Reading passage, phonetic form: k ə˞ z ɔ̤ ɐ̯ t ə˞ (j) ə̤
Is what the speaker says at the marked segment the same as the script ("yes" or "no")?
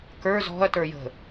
yes